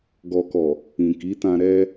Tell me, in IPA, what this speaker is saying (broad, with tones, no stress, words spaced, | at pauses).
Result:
ɡɔ˨kɔ˨ | ĩ˨ki˨˦tã˧ ɾɛ˧